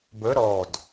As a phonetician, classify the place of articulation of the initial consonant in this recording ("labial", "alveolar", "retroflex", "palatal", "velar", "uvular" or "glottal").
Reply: labial